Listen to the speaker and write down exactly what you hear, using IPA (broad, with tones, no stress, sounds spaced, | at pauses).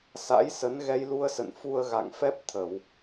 s a̰˧˥ j s ə˨˦ n ɣ ɛ˧ j l u˧ ə̯ s ə̰˧˨ n f u˧ ə̯ ɣ a̰˧˨ ŋ f ɛ˦˥ p̚ t̪ʰ ə˧˩˨ w